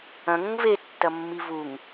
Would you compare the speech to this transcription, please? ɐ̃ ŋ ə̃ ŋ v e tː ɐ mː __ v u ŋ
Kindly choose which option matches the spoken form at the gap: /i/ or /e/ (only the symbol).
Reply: i